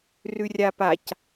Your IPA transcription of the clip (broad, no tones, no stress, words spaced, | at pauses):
rʉrʲapac